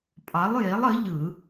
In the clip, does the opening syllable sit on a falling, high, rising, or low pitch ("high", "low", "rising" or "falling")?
rising